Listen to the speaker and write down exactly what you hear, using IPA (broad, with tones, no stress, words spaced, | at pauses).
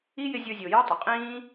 i˥jɪ˦ zʲo˦zʲo˨ jœ˥tˤɪ˩qʼĩː˥